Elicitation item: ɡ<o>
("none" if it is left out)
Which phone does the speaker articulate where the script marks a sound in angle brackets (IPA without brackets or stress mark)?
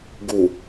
u